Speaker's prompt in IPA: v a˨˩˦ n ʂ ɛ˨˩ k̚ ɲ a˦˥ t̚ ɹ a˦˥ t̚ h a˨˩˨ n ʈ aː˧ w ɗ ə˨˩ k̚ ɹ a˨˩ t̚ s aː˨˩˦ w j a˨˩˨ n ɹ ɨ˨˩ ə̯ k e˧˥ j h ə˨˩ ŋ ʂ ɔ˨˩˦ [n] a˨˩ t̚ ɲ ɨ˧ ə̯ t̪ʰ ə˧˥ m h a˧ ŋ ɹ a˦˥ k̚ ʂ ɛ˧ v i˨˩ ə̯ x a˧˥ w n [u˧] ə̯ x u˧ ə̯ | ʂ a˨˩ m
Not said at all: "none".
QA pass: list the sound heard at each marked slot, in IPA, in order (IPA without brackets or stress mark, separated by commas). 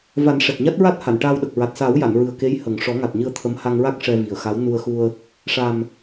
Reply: ŋ, u˧